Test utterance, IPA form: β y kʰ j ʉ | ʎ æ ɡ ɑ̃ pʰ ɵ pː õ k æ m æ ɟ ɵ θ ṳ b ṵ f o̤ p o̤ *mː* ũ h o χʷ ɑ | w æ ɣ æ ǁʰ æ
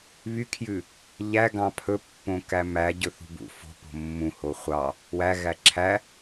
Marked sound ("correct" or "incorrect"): correct